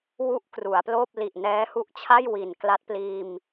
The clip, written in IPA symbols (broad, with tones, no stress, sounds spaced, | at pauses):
w u˥˩ ʔ k r u˩˦ a̯ p l oː˥˩ p̚ l i˨˩ ʔ n ɛː˦˥ h u˦˥ ʔ t͡ɕʰ a˥˩ j w i˨˩ n k l a˦˥ t̚ p l iː˧ m